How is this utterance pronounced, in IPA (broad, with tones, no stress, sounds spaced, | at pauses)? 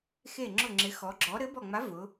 x e˧˩ ŋ͡ǁ ʊ˧˩ ŋ͡ǁ ɪ˩˧ x ɔ˩˧ ɡ͡ǁ ɔ˨˥ ɾ ɘ˨˥ b ɔ˧˩ ŋ͡m a˨˥ v ʊ˩˧